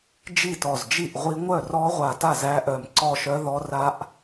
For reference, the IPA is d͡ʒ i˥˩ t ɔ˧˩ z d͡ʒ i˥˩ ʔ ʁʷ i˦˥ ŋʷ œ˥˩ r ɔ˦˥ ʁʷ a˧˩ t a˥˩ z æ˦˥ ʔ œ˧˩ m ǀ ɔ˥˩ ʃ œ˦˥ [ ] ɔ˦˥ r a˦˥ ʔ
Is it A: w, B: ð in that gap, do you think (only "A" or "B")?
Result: B